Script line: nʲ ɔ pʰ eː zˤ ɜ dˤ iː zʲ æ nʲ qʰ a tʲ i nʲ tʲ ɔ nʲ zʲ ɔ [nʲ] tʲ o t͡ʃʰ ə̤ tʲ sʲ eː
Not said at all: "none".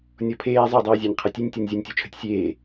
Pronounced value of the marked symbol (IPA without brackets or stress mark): nʲ